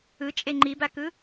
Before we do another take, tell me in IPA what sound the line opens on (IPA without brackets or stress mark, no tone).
ɯ